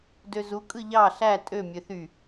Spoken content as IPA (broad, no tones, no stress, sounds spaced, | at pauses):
d ø z u kʼ ɯ ʎ ɑ ɬ æ tʼ ø mʲ ø θ y